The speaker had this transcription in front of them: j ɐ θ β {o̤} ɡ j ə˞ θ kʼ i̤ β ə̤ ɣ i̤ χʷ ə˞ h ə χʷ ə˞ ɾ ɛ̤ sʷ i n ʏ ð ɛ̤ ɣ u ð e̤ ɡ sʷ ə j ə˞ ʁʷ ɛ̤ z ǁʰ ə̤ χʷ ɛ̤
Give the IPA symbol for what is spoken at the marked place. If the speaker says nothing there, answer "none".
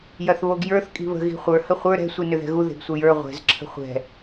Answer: o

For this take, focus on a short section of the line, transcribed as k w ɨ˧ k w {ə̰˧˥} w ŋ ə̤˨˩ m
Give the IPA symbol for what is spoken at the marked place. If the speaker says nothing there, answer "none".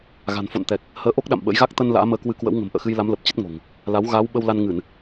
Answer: ə̰˧˥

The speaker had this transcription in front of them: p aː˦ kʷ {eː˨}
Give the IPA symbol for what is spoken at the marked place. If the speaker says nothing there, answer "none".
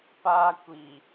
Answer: iː˨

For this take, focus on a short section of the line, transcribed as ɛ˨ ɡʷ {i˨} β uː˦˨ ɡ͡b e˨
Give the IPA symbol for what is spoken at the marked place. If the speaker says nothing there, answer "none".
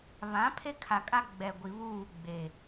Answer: i˨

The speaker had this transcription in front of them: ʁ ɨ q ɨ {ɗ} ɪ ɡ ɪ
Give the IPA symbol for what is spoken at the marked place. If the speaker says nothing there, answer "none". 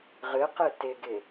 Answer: t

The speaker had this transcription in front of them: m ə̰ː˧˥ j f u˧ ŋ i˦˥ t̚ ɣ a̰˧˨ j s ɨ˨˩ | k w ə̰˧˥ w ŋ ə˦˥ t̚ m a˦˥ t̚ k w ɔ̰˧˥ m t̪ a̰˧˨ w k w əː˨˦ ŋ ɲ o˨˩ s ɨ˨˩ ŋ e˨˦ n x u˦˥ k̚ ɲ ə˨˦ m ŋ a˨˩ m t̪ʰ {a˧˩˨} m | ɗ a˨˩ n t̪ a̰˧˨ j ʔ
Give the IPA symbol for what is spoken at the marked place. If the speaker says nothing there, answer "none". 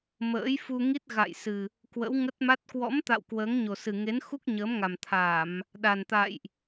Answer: a˧˩˨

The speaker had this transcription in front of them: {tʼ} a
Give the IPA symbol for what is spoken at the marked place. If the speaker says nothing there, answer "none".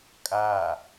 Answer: kʼ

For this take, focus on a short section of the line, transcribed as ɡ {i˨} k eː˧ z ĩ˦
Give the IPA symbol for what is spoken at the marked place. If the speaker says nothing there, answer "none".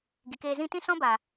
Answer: i˨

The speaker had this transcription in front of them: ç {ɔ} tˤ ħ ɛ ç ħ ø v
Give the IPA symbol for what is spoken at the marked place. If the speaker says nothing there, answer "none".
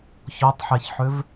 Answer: ɔ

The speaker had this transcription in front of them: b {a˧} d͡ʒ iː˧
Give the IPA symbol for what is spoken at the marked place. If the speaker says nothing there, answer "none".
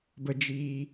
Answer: ə˧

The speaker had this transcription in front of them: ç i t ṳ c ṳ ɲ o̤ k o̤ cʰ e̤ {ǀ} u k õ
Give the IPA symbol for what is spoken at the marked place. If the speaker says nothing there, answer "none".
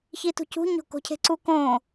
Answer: ǀ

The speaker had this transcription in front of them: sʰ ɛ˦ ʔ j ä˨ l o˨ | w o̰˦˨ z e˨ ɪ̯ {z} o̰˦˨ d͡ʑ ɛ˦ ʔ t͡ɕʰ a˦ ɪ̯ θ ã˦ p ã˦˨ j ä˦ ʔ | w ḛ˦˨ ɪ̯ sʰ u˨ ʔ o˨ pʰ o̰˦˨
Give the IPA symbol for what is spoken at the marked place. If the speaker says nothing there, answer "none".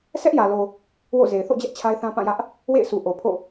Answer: θ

